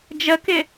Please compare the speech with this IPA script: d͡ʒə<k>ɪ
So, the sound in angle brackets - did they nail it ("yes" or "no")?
yes